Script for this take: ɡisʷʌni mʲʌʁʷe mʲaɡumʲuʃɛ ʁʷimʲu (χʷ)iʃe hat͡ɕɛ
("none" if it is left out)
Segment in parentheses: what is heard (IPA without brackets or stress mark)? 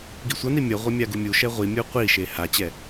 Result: qʷ